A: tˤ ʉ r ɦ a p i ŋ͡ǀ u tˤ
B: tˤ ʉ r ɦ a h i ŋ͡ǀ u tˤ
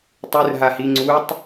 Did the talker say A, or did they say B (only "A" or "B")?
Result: B